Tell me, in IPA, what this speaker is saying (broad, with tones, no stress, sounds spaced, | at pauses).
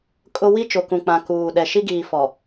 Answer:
kʼ ʊ˦ w i˦ t͡ʃ o˨ k ũ˨ k͡p ã˨ k uː˨ ɗ ɛ˨ ʃ i˦ ɡ iː˨ f ɔ˨